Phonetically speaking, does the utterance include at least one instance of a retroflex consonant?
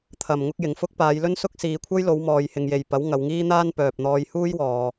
no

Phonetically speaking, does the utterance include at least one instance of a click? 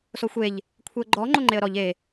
yes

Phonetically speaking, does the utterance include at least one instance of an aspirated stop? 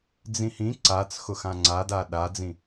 no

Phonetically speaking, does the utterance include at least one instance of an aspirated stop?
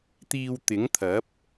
yes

